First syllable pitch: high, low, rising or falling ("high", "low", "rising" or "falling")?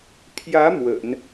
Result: rising